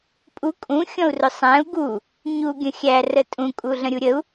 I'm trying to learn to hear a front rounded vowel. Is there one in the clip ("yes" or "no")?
no